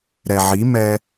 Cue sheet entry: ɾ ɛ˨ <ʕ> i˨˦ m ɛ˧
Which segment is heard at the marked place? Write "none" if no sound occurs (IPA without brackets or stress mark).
ʕ